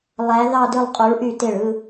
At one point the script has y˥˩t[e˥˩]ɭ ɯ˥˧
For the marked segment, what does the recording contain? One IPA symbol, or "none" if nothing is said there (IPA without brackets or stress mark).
e˥˩